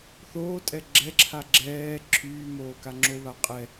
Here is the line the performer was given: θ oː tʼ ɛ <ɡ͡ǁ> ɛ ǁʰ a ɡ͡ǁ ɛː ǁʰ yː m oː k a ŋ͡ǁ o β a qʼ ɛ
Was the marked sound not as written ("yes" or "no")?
no